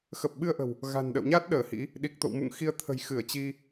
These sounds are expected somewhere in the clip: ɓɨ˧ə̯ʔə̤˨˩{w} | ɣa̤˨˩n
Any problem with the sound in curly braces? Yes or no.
no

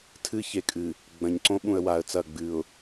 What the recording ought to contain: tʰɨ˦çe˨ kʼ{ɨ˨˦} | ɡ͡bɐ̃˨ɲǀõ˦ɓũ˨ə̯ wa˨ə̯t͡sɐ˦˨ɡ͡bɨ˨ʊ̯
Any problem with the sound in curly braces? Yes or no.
yes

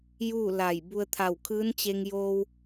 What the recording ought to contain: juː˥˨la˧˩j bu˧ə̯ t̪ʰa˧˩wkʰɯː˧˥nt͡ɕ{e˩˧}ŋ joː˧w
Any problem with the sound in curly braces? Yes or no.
yes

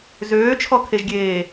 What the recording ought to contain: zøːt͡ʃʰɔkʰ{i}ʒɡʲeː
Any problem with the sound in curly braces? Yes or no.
yes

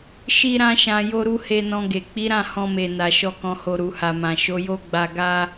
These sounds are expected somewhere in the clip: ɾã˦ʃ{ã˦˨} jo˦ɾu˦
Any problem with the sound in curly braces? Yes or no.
yes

